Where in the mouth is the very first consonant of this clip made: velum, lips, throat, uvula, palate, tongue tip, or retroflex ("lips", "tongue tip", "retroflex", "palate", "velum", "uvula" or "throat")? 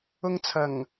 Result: velum